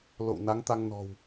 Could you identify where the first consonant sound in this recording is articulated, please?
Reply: alveolar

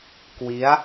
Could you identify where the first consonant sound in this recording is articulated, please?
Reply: velar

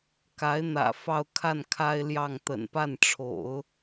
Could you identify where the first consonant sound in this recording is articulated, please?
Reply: velar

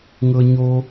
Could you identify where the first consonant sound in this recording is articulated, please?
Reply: velar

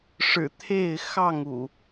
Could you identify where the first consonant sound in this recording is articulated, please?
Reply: retroflex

